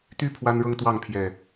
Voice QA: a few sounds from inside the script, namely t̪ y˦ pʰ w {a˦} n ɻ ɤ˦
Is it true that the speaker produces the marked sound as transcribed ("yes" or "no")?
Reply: yes